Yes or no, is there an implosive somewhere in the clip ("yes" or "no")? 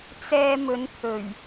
no